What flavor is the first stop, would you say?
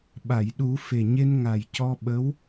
implosive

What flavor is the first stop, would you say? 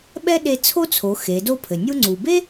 implosive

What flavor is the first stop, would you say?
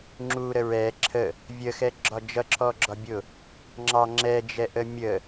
click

